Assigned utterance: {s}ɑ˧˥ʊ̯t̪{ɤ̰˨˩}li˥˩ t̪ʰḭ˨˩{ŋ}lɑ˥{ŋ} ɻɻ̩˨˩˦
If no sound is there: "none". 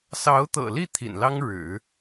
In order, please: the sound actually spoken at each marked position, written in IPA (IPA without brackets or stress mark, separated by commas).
s, ɤ̰˨˩, n, ŋ